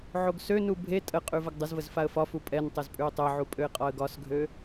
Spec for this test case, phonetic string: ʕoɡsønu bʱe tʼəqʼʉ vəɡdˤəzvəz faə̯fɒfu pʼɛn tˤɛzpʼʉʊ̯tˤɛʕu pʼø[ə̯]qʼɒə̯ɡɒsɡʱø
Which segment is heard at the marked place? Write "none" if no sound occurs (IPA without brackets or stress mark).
ɪ̯